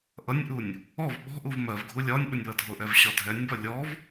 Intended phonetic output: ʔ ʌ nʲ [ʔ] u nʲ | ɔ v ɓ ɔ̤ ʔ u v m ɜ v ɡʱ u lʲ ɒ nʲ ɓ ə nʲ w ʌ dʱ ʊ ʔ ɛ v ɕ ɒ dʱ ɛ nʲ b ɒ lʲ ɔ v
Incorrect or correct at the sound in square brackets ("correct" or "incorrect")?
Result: correct